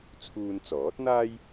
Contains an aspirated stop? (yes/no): yes